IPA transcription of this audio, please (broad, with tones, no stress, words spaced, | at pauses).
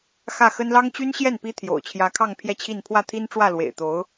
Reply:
xä˥˩xə˥n lɑ˥ŋt͡ɕy˥nɕjɛ˥˩n pi˥t̪ʰjo̰˨˩ʊ̯t͡ɕʰjä˧˥kʰɑ˥˧ŋ pʰjɛ˥˧t͡ɕʰi˥˧n pʰwä˥˩t̪ʰi˥nʈ͡ʂwä˥˩ lwḛ˨˩ɪ̯t̪o˧˥ʊ̯